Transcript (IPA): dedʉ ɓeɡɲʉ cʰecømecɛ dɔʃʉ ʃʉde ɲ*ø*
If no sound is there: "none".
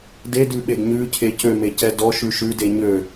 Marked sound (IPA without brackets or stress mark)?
ø